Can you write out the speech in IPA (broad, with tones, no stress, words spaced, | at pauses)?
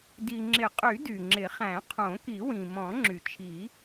di˩ ŋ͡ǁɪ˨˩˦qʼy˨˩˦ dy˩ŋ͡ǁɪ˨˩˦χæ̃˨˩˦ qʰõ˨˩˦ki˨˩˦wĩ˩ mɔ̃˨˩˦ŋ͡ǁy˩t͡ʃʰi˨˩˦